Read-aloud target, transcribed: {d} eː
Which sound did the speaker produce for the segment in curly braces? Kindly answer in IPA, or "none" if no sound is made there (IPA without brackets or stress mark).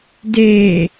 d